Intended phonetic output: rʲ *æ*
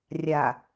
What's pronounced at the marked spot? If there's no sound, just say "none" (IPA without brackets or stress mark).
a